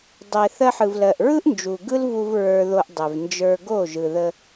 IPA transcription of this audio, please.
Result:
dˤ e˨ θ ɜ˧ ħ ɯ˨ v l ɜ˨ ʔ ɹ ɯ˦ ʔ n d͡ʒ u˨ ɡ ɯ˦ l v u˧ v ɹ ə˞˧ ð o˧ ʔ dˤ e˨ v n d͡ʒ ə˞˧ ɡ o˦˨ ʒ ɯ˨ ð ə˧

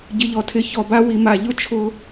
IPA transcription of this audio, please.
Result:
ɟ ɪ˧ ʎ ɔ˧ tʰ ɪ˧ ç ɔ˧ b a˦ w i˧ m a˧ ʎ ʊ˦ t͡ʃʰ ʊ˦

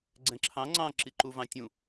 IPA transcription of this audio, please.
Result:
ɡ͡ǀ ɛ̃ ǁʰ ɑ̃ ŋ͡ǀ ɑ̃ ǁ i ǃ u v ɑ̃ tʲ ũ

